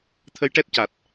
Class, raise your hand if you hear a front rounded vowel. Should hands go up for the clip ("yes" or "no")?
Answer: no